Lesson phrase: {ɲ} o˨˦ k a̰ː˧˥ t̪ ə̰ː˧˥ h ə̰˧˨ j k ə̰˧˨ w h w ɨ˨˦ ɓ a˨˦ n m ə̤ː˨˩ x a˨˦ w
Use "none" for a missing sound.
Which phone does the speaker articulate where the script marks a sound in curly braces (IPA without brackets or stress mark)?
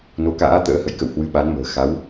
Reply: n